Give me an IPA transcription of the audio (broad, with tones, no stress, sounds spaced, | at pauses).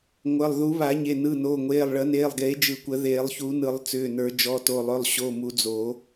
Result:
ŋʷ ə˩˧˩ lˠ ð u˨˩˦ β a˨˩˦ ɲ e˩˧˩ n ɯ˩˧˩ n oː˩˧˩ ŋʷ eː˩˧˩ lˠ ɭ ə˨˩˦ n eː˩˧˩ lˠ ɡ eː˨˩˦ d͡ʒ ɯ˨˩˦ kʷ ə˨˩˦ ð eː˨˩˦ lˠ ç u˨˩˦ n ɯ˨˩˦ lˠ t͡s ʏː˩˧˩ n ə˞˨˩˦ d͡ʒ ɔ˩˧˩ t o˩˧˩ lˠ ʏ˩˧˩ lˠ ɕ o˩˧˩ m u˨˩˦ d͡z o˨˩˦